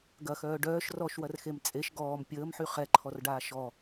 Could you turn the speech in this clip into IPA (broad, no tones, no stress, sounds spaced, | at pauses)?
ɡ ɐ x œː ɖ œː ʃ r ɔ ʃ w ɐ r x e m t͡sʼ e ʃ ɡ ɔː m pʲ əː m ħ y χ ɛ ǃʰ ɔ r ɖ aː ʃ ɔ